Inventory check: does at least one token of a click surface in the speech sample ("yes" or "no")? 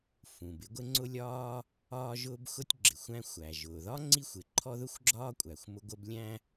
yes